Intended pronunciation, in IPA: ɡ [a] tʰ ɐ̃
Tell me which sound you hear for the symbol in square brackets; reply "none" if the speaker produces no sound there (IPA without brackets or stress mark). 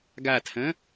a